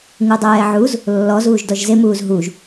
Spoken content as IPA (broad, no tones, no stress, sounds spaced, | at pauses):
ŋ u dˤ ɛː ʕ u z | lː ɔ z uː ʒ d ɔ ʒ z e m uː z ɦ u ʒ